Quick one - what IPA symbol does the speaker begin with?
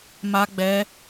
m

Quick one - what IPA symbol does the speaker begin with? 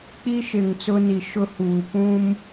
k͡p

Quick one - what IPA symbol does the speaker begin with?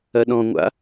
ɐ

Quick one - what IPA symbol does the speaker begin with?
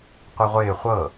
qʷ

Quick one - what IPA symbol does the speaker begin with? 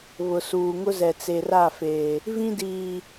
β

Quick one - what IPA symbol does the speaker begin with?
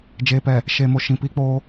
d͡ʒ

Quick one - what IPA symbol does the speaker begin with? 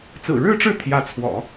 t͡s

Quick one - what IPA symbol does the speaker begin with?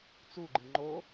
t͡s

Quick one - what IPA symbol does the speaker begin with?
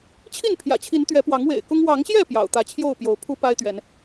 t͡ɕʰ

